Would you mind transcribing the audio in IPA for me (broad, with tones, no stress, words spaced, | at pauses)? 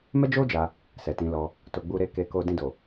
mɛ˦d͡ʒo˦ d͡ʒa˧ | sɛ˨tĩ˨˦lɔ˧ | to˧ɡ͡bu˦ɾe˦ ke˧ko˧ dĩ˧do˨